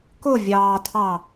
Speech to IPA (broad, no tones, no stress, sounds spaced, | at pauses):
k ʊ vʲ ɑː tʰ ɑ